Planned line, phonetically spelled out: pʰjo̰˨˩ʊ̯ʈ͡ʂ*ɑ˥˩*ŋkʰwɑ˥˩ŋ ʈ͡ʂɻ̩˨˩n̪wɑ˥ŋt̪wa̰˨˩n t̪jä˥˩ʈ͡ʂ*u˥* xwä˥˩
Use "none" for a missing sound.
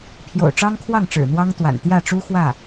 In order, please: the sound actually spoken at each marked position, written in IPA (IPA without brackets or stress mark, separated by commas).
ɑ˥, u˥